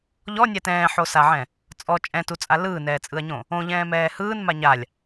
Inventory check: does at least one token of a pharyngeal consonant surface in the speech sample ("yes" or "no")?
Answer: yes